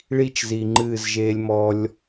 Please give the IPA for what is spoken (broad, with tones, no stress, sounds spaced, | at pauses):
ɭ i˦ t͡ʃ z i˨ ŋ͡ǃ ɨː˦˨ z ʒ eː˦ lʲ m ɔ˦ lʲ